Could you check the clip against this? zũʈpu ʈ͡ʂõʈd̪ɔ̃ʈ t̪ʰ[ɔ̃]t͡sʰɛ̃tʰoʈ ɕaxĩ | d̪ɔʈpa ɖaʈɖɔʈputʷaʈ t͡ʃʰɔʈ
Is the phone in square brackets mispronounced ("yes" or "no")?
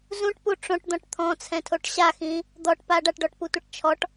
no